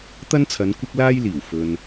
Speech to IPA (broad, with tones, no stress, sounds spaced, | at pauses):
t̪ ɐ˥ n t͡sʰ ɐ˨˧ n kʷ ɪ˥ k̚ l aː˥ j l iː˨˩ w f ɵ˨ n